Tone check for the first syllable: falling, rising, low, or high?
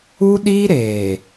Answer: high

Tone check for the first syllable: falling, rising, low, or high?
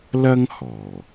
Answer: high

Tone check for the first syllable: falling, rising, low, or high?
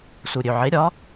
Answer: low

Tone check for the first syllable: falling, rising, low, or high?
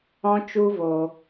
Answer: high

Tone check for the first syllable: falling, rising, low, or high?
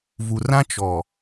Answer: low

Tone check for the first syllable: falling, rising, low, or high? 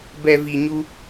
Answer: low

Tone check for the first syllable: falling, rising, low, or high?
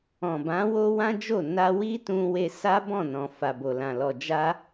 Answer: low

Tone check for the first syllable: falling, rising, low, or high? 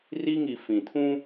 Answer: high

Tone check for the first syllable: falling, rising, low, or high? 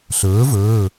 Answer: rising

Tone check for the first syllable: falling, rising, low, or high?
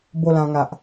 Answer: falling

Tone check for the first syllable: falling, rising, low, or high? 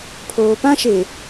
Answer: high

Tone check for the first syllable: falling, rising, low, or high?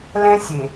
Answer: high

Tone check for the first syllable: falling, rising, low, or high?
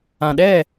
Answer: low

